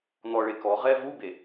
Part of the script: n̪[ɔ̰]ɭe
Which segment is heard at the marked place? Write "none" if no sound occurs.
ɔ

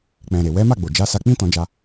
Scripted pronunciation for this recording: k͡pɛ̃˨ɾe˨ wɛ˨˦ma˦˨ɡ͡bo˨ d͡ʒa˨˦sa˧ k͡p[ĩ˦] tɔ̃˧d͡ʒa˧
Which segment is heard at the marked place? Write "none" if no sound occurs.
ĩ˦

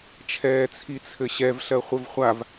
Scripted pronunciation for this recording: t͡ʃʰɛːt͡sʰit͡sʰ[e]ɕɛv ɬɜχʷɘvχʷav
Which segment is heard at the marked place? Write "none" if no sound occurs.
ɘ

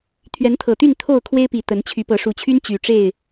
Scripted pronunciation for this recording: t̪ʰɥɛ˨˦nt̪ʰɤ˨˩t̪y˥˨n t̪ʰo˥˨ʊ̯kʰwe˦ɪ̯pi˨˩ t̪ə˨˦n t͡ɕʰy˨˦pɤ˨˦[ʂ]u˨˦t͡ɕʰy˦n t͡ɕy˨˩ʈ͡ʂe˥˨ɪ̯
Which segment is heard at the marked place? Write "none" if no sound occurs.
ʂ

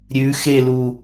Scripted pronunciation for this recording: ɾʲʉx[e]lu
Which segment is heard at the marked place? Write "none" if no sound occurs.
e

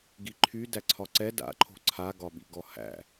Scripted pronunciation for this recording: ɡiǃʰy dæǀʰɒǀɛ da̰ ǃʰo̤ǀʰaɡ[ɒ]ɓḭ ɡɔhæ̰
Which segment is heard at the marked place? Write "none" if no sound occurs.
ɒ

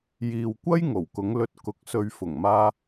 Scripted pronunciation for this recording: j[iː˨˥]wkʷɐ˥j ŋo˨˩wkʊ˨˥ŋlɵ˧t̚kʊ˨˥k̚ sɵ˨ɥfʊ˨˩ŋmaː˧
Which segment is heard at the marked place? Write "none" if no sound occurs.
iː˨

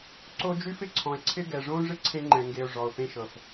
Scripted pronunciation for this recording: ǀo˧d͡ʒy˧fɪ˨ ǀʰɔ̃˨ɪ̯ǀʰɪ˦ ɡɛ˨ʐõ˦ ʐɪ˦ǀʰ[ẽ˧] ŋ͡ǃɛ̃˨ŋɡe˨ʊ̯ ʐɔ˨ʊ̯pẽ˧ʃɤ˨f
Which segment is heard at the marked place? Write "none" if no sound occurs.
ẽ˧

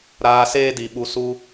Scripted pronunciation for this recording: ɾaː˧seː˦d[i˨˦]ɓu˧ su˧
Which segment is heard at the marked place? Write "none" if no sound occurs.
i˨˦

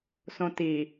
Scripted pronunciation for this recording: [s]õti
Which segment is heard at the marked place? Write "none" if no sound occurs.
s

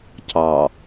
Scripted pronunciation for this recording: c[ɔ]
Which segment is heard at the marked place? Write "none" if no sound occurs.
ɑ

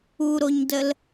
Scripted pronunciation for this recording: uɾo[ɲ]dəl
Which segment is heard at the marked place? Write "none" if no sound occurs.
ɲ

